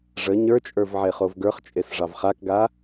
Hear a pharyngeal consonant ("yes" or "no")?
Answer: yes